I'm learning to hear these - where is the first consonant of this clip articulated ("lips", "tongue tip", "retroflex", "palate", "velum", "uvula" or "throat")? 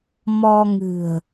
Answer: lips